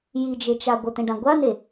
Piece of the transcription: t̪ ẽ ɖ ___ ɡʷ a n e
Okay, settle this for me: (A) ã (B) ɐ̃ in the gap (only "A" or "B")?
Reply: A